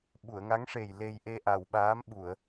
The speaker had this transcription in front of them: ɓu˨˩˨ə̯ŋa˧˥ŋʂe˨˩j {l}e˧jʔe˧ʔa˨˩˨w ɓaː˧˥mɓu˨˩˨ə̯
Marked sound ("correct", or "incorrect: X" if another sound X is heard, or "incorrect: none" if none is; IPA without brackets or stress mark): correct